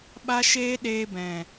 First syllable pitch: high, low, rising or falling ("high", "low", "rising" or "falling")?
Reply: high